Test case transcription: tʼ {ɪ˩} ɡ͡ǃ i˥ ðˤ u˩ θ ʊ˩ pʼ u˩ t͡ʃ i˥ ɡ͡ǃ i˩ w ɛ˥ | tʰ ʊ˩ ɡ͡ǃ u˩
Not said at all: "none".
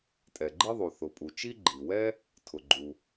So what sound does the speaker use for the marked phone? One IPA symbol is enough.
ɛ˩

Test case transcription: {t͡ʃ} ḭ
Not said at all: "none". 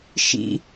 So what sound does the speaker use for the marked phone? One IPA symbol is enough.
ʃ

